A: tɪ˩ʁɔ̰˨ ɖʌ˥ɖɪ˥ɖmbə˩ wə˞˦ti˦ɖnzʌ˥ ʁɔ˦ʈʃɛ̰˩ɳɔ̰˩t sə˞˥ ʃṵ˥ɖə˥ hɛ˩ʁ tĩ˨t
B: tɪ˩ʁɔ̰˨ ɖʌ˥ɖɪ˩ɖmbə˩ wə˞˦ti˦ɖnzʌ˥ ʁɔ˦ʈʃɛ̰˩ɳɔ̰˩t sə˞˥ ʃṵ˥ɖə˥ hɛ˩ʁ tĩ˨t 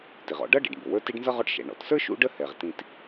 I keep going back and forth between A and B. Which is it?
B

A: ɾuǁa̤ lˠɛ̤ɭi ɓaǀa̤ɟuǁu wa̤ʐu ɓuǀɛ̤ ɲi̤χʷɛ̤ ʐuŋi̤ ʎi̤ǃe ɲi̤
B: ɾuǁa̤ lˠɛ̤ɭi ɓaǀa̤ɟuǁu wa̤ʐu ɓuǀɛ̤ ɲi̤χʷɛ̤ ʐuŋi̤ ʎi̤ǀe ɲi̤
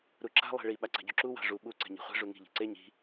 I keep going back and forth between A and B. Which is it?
B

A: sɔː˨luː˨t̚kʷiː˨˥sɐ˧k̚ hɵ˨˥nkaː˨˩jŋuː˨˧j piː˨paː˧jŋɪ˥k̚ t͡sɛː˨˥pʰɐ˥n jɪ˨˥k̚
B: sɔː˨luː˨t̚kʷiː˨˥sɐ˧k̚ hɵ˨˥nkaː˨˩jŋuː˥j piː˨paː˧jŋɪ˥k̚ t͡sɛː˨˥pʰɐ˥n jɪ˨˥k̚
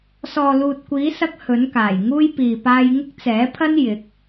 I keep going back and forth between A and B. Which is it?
B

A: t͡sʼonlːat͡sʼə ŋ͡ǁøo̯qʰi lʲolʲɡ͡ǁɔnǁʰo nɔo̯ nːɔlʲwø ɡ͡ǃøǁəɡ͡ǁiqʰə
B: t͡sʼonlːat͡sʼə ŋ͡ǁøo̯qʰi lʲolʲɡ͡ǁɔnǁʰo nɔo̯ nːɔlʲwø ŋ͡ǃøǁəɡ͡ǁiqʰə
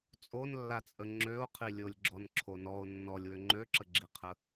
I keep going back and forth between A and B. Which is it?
B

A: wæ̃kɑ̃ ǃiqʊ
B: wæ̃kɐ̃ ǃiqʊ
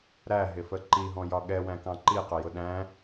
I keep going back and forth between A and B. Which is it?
A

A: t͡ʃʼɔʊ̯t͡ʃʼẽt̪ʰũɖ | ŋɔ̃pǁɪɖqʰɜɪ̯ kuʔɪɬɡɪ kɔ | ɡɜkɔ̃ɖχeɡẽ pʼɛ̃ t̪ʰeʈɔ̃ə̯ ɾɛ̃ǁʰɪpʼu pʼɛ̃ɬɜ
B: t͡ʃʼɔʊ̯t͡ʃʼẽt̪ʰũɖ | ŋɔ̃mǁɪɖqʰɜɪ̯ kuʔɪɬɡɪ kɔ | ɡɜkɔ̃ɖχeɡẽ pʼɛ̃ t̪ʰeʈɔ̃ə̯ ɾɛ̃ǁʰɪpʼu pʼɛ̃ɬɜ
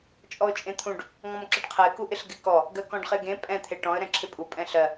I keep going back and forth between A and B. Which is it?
B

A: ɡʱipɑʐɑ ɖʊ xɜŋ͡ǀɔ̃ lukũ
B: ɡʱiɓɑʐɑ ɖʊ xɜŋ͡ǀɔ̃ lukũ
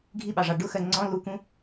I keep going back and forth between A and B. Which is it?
B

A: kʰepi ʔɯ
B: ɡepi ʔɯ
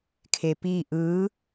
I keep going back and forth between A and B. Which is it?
A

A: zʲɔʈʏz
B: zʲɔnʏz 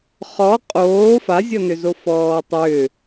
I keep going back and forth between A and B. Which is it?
B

